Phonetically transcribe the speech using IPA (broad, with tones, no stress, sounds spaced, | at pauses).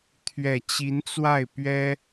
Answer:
t̪ʰ ɥ ɛ˨˩ t͡ɕ i˧˥ n t͡s w a˥˩ ɪ̯ p ɥ ɛ˥